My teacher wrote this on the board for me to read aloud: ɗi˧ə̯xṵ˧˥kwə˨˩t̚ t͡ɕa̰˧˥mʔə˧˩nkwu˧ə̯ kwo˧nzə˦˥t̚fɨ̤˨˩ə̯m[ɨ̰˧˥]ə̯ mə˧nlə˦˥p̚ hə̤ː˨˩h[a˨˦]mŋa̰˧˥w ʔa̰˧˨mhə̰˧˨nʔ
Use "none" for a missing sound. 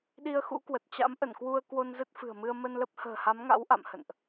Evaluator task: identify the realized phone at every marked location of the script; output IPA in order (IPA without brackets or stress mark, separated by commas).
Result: ɨ˧, a˨˦